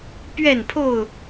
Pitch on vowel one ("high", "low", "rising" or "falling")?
falling